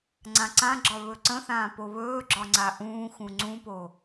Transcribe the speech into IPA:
ŋ͡ǀ ã ǀ ã ɡ͡ǁ ɒ β ɵ ǀ ə̃ θ ãː p o β ɵː ɡ͡ǁ ɒ ŋ͡ǀ a ʔ ũː x ũ ŋ͡ǀ ũ p o

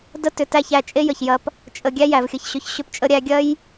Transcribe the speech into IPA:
d ə˦ t ʏ˨ t æ˦˨ ç æ˧ t͡ʃʼ e˦ j ə˨ ç j ɐ˧ p | t͡ʃʼ ə˨ ɡʲ æ˦ j æ˨ v xʲ ə˧ ç ɕ ʏ˧ ç ɕ ʏ˧ p t͡ʃʼ ə˧ ɾʲ æ˧ ɡʲ ɐ˦ j

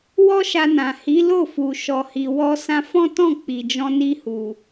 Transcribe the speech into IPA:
w ɔ˦ ʃ a˧ n ã˨ h i˨˦ l o˦˨ f u˨ ʃ ɔ˨ h i˨ w ɔ˧ s ã˧ f ɔ̃˦ t ɔ̃˦˨ k͡p i˨ d͡ʒ ɔ̃˧ n i˧ h u˨

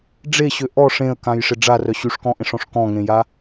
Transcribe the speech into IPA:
ɖ͡ʐ e ɕ ø ʔ ɔ ʂ ẽ ə̯ k ã j ʂ ɪ ɖ͡ʐ a r œ ɕ y ʂ k ɔ̃ ʔ ẽ ʂ ɔ̃ ʂ k ɔ̃ ŋ ẽ j a

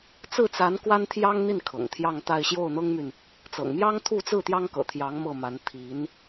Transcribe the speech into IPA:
t͡s ɹ̩˥˩ t͡s a˧˥ n k w a˥ n t̪ʰ j ɑ˥ ŋ n̪ i˥˩ n kʰ ɤ̰˨˩ ŋ t̪ʰ j ɑ˥˧ ŋ t̪ a˥˧ ɪ̯ ɕ j o˥˩ ʊ̯ n̪ ɤ˥ ŋ m y˨ n | t͡s ɤ̰˨˩ ŋ m j ɑ˥ ŋ t̪ʰ u˥˧ t͡s ɹ̩˥˩ t̪ j ɑ˥ ŋ k ɤ̰˨˩ t̪ʰ j ɑ˧˥ ŋ m ɤ˥˩ m a˧˥ n t̪ʰ i˧˥ n

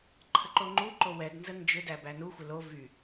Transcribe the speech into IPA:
ǃʰ ə ǃ o ŋ͡ǃ u ǃ o w ɛ d n z ə n d͡ʒ ʏ d æ b æ n u xʷ ɪ l o v y

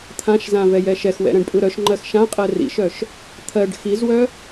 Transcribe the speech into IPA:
t̪ʰ ã ʃ z ã v ɛ j ɛ ʃ ɛ x w ɛ̰ ɾ ɛ̃ ɖ pʼ ɯ ɾ œ ʃ ŋ͡ǃ ɜ x ʃ ã qʼ ɜ r ḭ ʃ œ ʃ | t̪ʰ ɜ ɖ x i z w œ

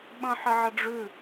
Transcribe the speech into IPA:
ɓ ə̃ ħ ɪ ʕ ə ɖ͡ʐ ʉ

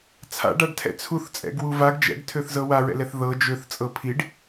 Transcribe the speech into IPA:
t͡sʰ a̰ ɖ a ɖ tʰ ɛ̰ t͡sʰ u θ t͡sʼ ɛ̰ ɡ w u v a ɡ d͡ʒ ɛ̰ ɡ tʰ ø θ z ɤ w a ɹ ɛ̰ l ɛ θ ð ɤ d͡ʒ ø θ t͡sʼ ɤ pʰ i ɖ

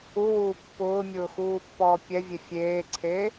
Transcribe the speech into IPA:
u w uː pː ʊː mʲ ʊː x uː pː ɔː pʲ ɛ vʲ e fʲ eː ǀʰ eː

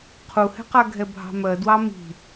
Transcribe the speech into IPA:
qʰ u h ɛ̤ q a ɡʱ ɛ bʱ ɑ̤ m ɜ d w ɑ m i̤

